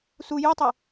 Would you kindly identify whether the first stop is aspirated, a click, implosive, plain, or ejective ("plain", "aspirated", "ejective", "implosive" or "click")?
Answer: plain